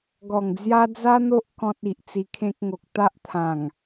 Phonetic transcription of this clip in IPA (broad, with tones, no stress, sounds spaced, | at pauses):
ɡ ɔ˨˩ ŋ d͡z j a˦ d͡z a˦ n̪ o˦ ʔ k ɔ̃˦ t̚ i˨ ʔ t͡s i˧ kʰ ẽ˦ k̚ ŋ o˨ k̚ t̪ a˦ ʔ t̪ʰ ã˨˩ ŋ